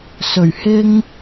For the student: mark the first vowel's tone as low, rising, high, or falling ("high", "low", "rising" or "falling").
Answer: low